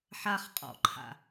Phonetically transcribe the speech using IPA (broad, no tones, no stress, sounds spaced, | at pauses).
ħ a χ qʼ ɔ̰ ǃʰ a̰